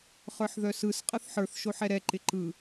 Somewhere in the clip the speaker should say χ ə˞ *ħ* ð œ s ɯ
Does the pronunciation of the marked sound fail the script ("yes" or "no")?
no